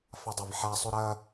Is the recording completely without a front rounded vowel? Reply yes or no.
yes